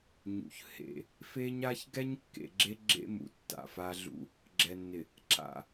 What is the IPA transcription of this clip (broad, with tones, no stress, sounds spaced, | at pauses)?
ɲ ṵ˨ ç h ḛ˨ | f e˦ ɲ a˦ ç ɡ ɛ˦ ɲ kː ḛ˨ ɡ͡ǁ e˦ ɡ͡ǁ ḛ˦ m ṵ˨ tː a̰˨ f a˦ ɮ ṵ˦ | ɡ͡ǁ ɛ˨ nː ɪ˨ | ǁ a̰˨